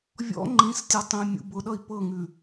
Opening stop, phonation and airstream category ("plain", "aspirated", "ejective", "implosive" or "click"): click